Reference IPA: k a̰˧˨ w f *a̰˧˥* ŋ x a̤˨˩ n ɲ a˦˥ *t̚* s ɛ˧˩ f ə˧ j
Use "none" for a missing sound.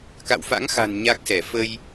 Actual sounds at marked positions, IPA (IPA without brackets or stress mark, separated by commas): a̰˧˥, k̚